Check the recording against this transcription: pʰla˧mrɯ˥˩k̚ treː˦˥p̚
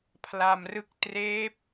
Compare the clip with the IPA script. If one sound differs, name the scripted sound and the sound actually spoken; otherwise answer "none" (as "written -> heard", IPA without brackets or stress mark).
none